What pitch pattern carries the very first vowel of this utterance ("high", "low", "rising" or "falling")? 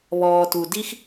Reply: low